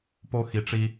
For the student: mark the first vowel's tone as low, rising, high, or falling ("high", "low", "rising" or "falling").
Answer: high